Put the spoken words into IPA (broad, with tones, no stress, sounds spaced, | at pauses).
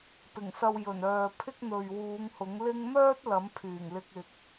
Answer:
p ɪ˨˩ ŋ s ɐ˧ w j ɵ˨˩ n œː˨ pʰ ɪ˥ k̚ n̪ ɵ˨ ɥ w uː˨˧ ŋ h ʊ˨˥ ŋ l ɪ˥ ŋ m œː˥ t̚ l ɐ˨˥ m pʰ yː˨˩ ŋ l ɪ˧ k̚ ɪ˨ k̚